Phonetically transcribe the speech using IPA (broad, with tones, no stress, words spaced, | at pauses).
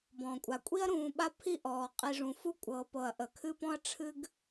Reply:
bɔ̃˩kʷʼa˩ kʷʼi˥ɐ̯ɾũː˨ɓa˦ pʰi˥ ʔɔː˩qʼi˨ʐũ˩ fu˦kʷʼɤː˩pɤ˩ɐ̯ ʔə˩kʰɨ˦pɔ̃˦ɐ̯ ʈ͡ʂʰɨ˥ɡ